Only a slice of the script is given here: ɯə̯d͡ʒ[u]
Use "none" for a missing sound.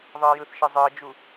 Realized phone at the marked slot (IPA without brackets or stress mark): u